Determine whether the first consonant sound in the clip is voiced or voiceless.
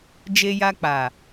voiced